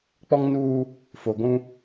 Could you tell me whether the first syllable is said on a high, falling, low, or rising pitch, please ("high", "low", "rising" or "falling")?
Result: high